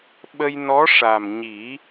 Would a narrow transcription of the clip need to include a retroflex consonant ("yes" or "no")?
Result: yes